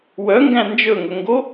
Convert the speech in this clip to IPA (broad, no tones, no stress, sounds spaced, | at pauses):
w œ ŋ ɡ æ̃ n d͡ʒ ɵ ŋ ɵ ŋ ɡ o